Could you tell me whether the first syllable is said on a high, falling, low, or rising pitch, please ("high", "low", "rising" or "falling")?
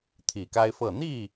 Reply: low